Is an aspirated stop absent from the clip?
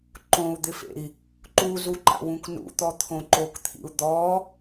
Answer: no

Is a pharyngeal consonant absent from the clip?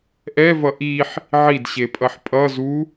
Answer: no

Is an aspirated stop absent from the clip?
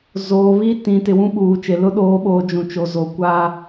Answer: yes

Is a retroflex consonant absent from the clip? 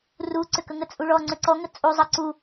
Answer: no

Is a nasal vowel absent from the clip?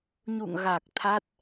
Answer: yes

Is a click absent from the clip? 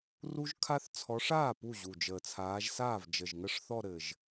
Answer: yes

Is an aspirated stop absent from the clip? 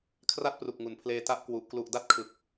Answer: no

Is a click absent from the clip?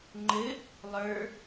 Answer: no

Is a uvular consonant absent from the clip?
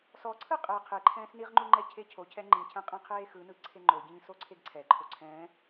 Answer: no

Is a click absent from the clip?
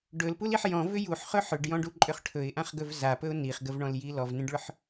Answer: no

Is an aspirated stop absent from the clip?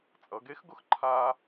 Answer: no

